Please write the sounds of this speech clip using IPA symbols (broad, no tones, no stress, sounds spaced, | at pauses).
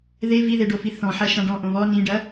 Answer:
ð e v i ð e ɖ o f i θ ɔ̃ ħ ɐ ʃ ã ɖ ɔ̃ ʔ õ β ɔ n ĩ ɖ ɐ